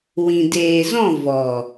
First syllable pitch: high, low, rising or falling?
low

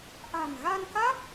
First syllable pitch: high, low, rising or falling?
low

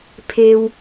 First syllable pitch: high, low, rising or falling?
low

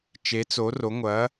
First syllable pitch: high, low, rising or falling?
rising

